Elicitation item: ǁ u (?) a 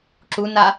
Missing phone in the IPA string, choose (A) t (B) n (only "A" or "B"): B